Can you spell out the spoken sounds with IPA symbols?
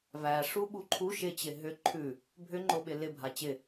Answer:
v æ ʂ u ɓ u ǃʰ u ʃ ɪ t͡ɕ ɪ ɦ ʏ ǃʰ ʉ | bʱ ʏ ŋ͡ǃ o ɓ ɪ l ɪ bʱ a t͡ɕ ɪ

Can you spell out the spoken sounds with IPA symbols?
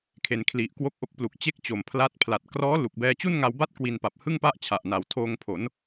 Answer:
kʰ e˩˦ n kʰ l i˨˩ ʔ k w o˦˥ k̚ ʔ o˦˥ k̚ p l u˨˩ k̚ t͡ɕ e˥˩ k̚ t͡ɕ o˨˩ m pʰ l a˦˥ t̚ pʰ l a˨˩ t̚ k r ɔː˦˥ l u˨˩ k̚ b ɛː˧ t͡ɕ u˥˩ n ŋ a˧ w b a˥˩ t̚ k w i˧ n p a˨˩ p̚ h ɯ˥˩ ŋ p a˥˩ ʔ t͡ɕʰ a˨˩ ʔ n a˨˩ w tʰ oː˧ ŋ pʰ o˩˦ n

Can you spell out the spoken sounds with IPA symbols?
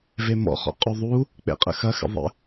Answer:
v e m ɔ̰ χ ɔ̰ qʼ u ðˤ u | k͡p ḛ qʼ ə̰ x ɐ x ə̰ ðˤ ə̰

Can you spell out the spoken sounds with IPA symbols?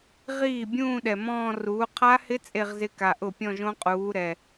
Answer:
ʁ iː˥˩ bʲ ũː˥˧ ɗ ɛ˨ m ɔ̃ː˥˧ r uː˨˥ qʰ a˦˥ h ɪ˦˥ t͡sʼ e˥˧ ʁ z ɪ˦˥ k a˨ ʔ ʊ˥˩ pʲ ɔ̃˥˧ ʒ õ˦˥ qʼ uː˨˥ ɾ ɛ˨

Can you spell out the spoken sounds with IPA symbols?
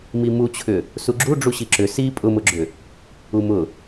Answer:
m i m u t͡ɕʰ ʏ | s u ɡ͡ǁ u ɖ͡ʐ u ɕ i ǁ ʏ s i pʼ ʊ m ʊ ɡ͡ǁ ʏ | u m ʊ

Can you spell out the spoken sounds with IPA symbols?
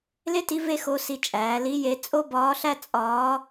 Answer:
l e˥ t i˧˥ v e˥ x o˧˥ s i˧ t͡ʃʼ æː˩˧ l i˧˥ j e˧ t͡sʼ o˥ b ɒː˧˥ ɬ æ˥ t͡sʼ ɒː˧˥

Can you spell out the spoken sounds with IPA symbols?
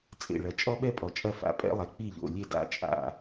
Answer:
t͡sʼ ḛ˥˩ ɭ ɐ˧ t͡ʃʼ ɔ˥ ɓ ɛ˥ pʼ ɔ˩ t͡ʃʼ ɐ˥˩ f a̰˧ pʼ ɛ̰˥ lˠ ɛ˩ k͡p i˥˩ ʎ o̰˩ lʲ e˥˩ d a̰˥˩ t͡ʃʼ a̰˥˩

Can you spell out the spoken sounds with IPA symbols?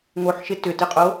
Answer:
ŋ o ħ ʃ ɪ t ʏ t ɪ qʼ o

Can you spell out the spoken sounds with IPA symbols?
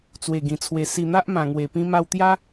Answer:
t͡s w e˨˩ ɡ ĩ˨˩ t͡sʰ w e˨˩ s i˧ n̪ a˦ ʔ m ã˨˩ ŋ w e˨˩ p ĩ˧ m a˧ w t̪ j a˦

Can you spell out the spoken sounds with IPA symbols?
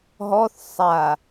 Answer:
ɦ ɔ θ sˤ a

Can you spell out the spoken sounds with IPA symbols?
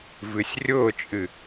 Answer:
v ɨ sʲ rʲ ʊː t͡ʃʼ ɨ

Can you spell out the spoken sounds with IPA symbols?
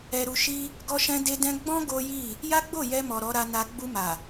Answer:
ɛ˨ ɾ u˨ ʃ i˧ | ɡ ɔ˧ ʃ ɛ̃˧ d e˧ d ɛ̃˧ ɡ͡b ɔ̃˦ ɡ o˦ j i˦˨ | j a˦ ɡ͡b o˦˨ j ɛ˧ m ɔ˨ ɾ ɔ˨˦ ɾ a˧ n a˧ ɡ͡b u˧ m a˨

